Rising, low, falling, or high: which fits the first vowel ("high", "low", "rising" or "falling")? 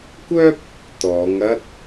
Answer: high